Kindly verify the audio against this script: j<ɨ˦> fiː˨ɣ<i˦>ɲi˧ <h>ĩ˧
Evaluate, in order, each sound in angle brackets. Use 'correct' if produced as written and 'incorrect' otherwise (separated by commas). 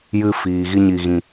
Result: incorrect, correct, incorrect